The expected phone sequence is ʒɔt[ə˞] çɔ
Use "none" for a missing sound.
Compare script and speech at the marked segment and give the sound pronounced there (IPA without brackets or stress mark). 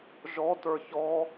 ə˞